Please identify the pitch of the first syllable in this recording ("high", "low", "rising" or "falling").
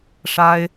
high